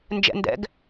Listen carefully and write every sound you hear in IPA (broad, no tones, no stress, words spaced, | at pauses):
nd͡ʒɛ̰ndɛ̰ɡ